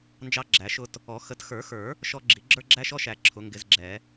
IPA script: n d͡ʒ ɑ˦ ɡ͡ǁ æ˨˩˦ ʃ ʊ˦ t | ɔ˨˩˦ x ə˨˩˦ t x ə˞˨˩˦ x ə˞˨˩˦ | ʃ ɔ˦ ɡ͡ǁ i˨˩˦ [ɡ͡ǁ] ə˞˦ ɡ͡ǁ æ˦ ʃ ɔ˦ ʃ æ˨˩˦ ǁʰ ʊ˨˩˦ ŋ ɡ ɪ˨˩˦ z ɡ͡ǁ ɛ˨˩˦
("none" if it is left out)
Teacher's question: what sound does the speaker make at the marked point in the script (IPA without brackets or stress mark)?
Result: ɡ͡ǁ